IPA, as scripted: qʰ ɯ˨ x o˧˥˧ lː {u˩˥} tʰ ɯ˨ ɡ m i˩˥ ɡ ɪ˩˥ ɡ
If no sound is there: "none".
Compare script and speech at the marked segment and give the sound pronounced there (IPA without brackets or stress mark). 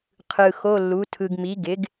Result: u˩˥